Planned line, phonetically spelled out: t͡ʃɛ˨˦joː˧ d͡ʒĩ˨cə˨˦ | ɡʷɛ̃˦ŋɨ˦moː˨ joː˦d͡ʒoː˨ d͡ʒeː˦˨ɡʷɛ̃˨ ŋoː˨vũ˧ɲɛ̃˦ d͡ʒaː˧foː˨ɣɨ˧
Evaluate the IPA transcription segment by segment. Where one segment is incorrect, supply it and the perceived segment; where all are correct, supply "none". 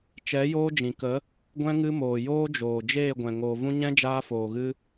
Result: c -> k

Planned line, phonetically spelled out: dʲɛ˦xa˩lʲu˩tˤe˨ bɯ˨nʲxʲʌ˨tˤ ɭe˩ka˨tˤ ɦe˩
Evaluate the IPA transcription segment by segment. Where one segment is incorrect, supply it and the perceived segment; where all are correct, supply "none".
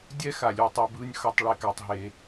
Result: xʲ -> x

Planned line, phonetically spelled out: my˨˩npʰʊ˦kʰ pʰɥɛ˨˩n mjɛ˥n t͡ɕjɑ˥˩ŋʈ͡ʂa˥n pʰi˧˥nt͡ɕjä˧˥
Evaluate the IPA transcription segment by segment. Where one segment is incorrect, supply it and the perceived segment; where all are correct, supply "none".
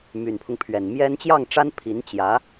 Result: kʰ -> ŋ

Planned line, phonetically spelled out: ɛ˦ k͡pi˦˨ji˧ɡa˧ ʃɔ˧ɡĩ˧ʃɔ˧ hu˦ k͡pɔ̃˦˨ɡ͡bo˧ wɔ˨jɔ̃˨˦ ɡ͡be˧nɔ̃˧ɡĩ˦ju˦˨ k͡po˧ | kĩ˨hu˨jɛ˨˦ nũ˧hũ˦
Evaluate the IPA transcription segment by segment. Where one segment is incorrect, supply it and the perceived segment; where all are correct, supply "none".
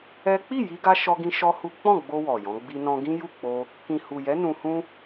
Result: e˧ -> i˧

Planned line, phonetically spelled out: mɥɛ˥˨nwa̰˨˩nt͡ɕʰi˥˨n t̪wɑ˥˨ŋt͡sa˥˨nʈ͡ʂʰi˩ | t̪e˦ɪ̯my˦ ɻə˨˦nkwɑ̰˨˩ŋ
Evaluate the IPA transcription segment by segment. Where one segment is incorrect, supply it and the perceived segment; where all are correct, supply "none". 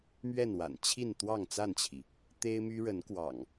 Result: ʈ͡ʂʰ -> t͡ɕʰ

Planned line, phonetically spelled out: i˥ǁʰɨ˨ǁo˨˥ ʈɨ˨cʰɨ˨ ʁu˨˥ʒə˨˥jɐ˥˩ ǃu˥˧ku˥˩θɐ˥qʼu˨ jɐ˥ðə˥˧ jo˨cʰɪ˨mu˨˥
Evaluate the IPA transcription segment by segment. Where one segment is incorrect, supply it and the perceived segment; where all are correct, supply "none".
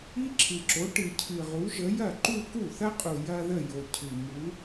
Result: ɪ˨ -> ɨ˨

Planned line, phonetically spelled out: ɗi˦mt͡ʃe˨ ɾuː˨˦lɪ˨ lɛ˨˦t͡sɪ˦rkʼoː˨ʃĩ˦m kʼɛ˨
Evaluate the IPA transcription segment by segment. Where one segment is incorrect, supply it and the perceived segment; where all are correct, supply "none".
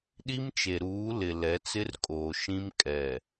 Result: none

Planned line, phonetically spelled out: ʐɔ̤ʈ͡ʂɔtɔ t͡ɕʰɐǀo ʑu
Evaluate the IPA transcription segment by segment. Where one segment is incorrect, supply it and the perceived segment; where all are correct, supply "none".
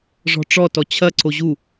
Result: none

